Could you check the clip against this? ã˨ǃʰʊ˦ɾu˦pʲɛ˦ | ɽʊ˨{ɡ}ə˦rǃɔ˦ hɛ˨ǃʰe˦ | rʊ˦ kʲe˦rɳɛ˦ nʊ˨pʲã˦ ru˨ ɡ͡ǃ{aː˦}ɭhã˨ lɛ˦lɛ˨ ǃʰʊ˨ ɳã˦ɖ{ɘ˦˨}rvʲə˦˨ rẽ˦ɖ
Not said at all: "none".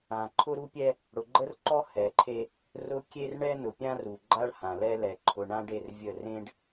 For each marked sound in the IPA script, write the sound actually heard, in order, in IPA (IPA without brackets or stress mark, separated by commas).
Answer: ɡ͡ǃ, a˦, e˦˨